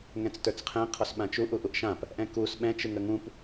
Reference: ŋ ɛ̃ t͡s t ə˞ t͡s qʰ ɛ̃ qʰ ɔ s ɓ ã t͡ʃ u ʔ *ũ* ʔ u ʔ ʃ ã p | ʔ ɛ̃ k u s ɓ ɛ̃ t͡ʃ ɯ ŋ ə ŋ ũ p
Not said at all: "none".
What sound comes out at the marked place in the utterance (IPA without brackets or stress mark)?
u